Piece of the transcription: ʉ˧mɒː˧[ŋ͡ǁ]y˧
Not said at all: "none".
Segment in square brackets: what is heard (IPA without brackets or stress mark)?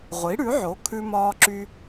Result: ǁ